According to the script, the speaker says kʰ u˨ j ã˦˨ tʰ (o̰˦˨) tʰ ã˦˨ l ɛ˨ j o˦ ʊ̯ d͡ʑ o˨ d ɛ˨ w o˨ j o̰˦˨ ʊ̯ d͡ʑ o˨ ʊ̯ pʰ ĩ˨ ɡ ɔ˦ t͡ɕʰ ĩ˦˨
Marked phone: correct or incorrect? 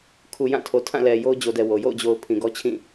incorrect